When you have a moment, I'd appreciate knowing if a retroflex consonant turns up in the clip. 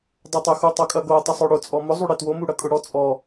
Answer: yes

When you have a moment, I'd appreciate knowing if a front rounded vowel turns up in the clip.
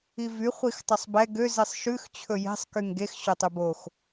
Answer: yes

